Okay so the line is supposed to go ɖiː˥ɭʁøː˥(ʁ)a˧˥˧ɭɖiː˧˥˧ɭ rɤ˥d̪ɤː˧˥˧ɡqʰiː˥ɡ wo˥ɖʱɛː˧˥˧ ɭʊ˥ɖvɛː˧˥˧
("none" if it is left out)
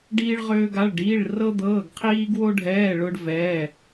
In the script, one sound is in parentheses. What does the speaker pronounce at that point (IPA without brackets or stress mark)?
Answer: ɡ